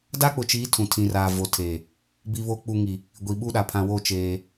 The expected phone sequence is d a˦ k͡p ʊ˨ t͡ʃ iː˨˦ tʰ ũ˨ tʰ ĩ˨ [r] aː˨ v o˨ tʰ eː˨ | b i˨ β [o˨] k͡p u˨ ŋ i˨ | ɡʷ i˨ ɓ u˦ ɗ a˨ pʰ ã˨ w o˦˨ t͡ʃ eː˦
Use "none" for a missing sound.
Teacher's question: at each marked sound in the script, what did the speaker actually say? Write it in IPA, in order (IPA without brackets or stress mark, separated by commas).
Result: r, o˨